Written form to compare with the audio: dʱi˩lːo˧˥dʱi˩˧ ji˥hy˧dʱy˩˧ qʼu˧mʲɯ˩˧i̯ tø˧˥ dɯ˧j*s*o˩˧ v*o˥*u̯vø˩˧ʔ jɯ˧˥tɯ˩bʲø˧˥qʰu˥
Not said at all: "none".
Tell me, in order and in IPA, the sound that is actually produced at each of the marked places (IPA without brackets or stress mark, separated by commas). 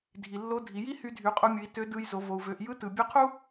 z, o˩